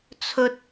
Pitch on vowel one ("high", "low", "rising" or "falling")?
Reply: low